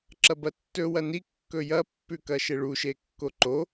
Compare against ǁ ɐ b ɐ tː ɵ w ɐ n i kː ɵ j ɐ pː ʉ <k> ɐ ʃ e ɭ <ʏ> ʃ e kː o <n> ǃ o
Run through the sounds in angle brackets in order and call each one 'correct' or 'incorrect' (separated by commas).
correct, incorrect, incorrect